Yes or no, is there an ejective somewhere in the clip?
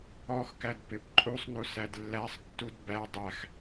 yes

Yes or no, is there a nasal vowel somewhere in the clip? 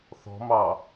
no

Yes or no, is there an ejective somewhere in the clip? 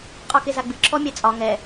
yes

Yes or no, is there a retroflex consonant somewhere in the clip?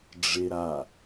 yes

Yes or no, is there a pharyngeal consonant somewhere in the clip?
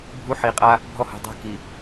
yes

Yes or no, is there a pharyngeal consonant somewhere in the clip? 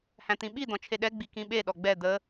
no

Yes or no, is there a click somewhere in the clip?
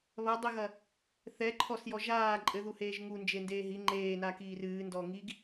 yes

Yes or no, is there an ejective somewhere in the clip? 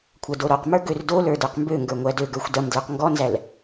no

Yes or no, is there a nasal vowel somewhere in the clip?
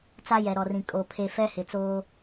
yes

